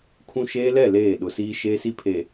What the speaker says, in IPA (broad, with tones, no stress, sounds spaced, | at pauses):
kʰ ũ˦ ʃ eː˦ l ɛ˦˨ l eː˦˨ ɗ ʊ˨ s iː˦ ʃ eː˦ s i˦ pʰ e˨